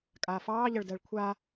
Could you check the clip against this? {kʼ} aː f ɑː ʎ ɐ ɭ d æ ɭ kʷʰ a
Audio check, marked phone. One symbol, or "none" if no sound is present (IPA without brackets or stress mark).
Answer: kʼ